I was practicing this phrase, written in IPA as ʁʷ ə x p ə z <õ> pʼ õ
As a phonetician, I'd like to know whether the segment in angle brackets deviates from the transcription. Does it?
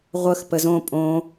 no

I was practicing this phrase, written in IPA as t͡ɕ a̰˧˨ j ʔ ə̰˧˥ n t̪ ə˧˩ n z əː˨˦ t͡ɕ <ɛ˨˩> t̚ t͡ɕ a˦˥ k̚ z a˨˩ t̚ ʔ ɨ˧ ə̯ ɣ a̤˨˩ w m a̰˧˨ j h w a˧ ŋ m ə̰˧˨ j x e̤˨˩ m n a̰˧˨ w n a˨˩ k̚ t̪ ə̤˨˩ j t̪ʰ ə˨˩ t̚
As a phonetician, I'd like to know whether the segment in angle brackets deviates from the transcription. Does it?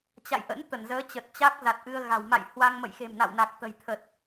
yes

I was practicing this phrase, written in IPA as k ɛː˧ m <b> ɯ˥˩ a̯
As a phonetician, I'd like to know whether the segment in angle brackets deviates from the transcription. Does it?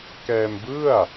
no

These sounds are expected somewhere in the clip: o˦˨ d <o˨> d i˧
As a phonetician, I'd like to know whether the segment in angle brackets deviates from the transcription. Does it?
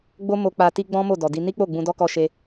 yes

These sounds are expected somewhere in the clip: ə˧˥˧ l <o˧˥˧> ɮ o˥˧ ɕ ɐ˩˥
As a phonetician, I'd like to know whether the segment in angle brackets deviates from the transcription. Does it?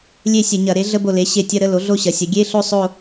yes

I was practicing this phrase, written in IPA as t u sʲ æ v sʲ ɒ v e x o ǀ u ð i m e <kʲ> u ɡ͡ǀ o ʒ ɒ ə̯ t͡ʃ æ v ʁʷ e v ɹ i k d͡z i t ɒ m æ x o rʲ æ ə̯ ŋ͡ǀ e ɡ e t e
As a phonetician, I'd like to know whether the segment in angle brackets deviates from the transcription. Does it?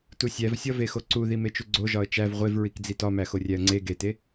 yes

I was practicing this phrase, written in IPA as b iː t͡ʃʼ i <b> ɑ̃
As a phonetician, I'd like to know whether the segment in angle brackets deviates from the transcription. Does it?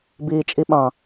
yes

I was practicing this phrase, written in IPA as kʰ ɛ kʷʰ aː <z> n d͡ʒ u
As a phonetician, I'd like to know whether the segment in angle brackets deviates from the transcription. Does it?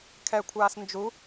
yes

